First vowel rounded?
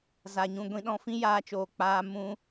no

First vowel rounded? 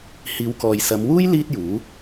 no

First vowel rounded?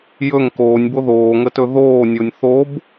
yes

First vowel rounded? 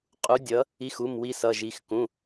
yes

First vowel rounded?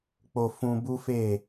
yes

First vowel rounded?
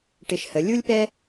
no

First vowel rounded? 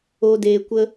yes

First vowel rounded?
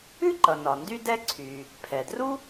yes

